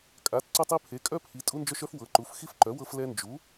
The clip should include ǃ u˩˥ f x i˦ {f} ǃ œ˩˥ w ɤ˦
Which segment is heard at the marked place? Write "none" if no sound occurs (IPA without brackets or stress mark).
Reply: f